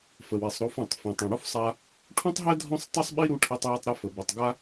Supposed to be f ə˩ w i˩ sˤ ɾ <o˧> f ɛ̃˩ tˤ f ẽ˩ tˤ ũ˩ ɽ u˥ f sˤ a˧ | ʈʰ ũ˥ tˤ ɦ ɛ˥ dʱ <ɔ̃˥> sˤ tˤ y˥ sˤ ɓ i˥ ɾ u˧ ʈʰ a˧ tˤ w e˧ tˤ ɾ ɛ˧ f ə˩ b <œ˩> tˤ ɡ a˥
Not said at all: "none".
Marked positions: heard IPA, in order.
o˧, ɔ̃˥, œ˩

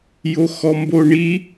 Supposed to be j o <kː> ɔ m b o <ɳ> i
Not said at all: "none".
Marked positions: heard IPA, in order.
x, ɳ

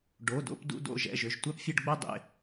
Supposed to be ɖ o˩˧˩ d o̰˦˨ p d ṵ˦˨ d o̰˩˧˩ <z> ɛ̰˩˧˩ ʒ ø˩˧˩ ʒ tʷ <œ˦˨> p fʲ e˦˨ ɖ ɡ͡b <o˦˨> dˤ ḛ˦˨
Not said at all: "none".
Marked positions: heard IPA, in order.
ʒ, œ˦˨, o˦˨

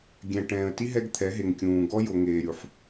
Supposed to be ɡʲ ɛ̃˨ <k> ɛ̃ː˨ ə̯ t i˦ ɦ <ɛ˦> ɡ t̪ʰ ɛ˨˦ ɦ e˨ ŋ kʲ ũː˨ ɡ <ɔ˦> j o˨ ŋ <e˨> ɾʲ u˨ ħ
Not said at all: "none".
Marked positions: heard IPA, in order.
ʈ, ɛ˦, ɔ˦, eː˨

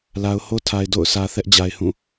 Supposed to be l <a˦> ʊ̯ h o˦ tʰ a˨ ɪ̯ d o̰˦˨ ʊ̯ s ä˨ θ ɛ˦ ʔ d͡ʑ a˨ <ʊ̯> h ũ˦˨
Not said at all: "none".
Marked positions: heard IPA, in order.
a˨, ɪ̯

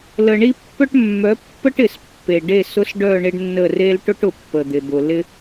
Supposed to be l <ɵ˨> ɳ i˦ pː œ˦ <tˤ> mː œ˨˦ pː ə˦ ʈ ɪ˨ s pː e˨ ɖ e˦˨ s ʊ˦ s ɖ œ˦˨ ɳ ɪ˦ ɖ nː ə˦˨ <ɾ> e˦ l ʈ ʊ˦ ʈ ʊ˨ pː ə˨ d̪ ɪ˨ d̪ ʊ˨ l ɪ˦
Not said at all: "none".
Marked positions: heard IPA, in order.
ə˨, ʈ, r

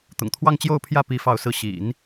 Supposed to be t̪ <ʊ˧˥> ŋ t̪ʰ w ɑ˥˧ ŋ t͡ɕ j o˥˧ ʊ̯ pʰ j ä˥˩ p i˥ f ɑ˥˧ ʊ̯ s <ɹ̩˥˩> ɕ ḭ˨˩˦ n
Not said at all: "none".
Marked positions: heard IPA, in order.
ʊ̰˨˩, ɹ̩˥˩

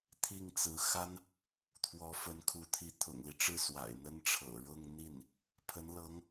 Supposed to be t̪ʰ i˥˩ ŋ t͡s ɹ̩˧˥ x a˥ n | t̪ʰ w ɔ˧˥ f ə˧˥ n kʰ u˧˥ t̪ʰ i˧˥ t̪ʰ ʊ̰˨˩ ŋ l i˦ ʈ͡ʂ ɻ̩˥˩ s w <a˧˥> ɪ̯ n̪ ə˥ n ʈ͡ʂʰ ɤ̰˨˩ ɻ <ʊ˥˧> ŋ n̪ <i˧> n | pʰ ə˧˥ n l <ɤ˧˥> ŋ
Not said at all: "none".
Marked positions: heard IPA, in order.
a̰˨˩, ʊ˥˧, i˥˩, ɤ˧˥

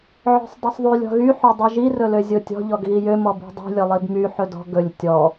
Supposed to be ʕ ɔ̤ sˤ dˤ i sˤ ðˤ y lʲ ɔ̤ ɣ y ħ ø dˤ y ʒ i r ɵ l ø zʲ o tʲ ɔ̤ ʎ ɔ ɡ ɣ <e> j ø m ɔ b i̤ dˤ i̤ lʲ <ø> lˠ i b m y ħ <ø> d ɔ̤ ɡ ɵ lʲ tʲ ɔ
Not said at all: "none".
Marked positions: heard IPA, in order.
i, ɵ, ɵ

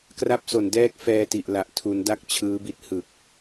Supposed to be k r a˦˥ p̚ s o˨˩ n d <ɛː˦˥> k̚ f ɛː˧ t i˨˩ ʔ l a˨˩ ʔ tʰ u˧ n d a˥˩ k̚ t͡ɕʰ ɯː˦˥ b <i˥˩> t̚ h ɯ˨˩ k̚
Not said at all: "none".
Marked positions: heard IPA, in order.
ɛː˦˥, i˦˥

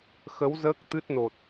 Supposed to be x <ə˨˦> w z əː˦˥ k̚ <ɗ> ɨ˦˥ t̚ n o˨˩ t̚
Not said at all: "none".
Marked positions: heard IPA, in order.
ə˨˦, t̪

